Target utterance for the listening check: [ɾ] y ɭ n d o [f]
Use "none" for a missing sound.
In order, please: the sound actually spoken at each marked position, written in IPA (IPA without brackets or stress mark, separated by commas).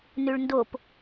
n, p